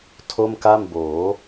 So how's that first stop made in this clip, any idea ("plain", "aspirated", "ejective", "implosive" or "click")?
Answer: aspirated